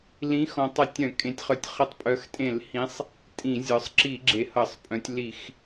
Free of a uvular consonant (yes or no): no